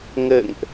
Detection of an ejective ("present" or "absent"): absent